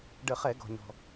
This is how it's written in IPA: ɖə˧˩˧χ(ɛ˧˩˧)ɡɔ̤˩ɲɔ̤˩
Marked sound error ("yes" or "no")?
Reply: no